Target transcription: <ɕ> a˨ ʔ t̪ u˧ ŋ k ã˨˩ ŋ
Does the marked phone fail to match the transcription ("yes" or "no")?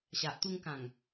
no